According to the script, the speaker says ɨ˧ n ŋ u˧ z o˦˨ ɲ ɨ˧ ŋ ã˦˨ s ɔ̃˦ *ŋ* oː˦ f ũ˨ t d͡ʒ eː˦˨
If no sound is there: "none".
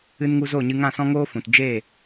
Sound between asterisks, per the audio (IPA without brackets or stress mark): ŋ